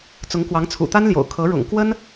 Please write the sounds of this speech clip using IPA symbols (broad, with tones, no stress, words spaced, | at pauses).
t͡sʊ˧˥ŋkwɑ˧˥ŋt͡sʰṵ˨˩ t̪a˥nljo̰˨˩ʊ̯ kʰɤ˧˥ɻʊ̰˨˩ŋ kwə˥n